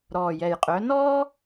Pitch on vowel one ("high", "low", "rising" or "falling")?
low